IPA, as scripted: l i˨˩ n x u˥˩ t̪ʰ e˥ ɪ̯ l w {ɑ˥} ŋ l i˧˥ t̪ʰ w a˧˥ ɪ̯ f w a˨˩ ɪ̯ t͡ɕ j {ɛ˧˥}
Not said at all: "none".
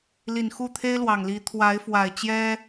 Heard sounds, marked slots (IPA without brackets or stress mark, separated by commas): ɑ˨˩, ɛ˥